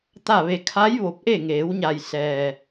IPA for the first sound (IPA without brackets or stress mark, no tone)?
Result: t̪